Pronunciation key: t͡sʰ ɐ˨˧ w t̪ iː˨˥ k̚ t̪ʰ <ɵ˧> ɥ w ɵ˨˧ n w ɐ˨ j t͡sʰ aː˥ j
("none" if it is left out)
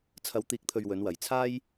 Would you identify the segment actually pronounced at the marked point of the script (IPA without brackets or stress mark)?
ɵ˨